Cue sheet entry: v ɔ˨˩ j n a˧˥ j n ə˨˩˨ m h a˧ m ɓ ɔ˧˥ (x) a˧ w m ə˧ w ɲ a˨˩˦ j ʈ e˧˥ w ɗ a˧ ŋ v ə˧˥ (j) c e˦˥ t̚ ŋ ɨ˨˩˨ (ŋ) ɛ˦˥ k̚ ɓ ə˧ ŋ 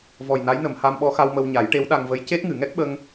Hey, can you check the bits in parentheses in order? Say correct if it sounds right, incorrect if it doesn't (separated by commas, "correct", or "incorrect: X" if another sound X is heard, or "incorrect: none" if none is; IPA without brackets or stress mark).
correct, correct, correct